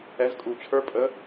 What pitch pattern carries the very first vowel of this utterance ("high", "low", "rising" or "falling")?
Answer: rising